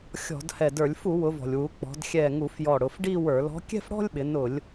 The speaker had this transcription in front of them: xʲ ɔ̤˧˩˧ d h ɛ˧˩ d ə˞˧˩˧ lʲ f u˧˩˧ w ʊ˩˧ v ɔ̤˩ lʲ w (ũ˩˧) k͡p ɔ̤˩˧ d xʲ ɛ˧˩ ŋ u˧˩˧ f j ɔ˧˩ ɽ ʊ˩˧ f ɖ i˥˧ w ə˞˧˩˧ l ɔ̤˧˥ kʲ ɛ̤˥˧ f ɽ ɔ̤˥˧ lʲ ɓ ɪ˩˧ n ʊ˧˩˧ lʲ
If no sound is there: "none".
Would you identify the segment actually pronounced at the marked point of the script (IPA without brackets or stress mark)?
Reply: u˩˧